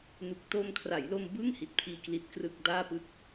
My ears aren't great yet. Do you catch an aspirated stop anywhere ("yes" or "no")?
yes